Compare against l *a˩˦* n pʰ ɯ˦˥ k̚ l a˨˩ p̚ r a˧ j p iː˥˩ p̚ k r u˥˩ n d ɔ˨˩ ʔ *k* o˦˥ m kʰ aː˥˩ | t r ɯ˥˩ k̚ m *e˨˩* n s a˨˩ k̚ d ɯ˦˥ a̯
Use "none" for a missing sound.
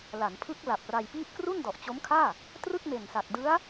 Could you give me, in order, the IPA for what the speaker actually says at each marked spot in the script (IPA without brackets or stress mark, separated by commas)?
a˩˦, t͡ɕ, e˨˩